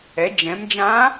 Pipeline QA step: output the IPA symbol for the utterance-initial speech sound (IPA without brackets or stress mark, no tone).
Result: ɛ